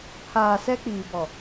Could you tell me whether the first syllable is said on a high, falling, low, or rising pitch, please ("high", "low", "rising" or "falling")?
low